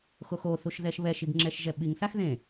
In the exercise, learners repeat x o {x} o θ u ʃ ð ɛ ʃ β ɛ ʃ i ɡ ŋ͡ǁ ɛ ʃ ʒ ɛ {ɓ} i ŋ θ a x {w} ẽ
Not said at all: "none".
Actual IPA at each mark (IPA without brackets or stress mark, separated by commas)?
x, ɓ, ð